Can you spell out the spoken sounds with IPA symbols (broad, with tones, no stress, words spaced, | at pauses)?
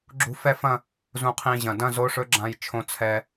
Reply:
ɡ͡ǁṳ˧˥fɛ˥˧fɐ̃˥˧ | zũ˧qʰĩ˧ʑɐ̃˨˩ dɐ̃˥˧zo˧˥ʂɵ˧˥ɡ͡ǁã˧j t͡ʃʰõ˧t͡sʰɛ˧